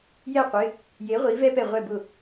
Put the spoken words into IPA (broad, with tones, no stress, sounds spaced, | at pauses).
j ɛ˥˩ qʷ ɪ˩˧˩ | j e˩˥ ʁʷ i˩˥ v ɛ˥ p ɛ˥˩ ʁʷ ɛ˥˩ b ʊ˥˩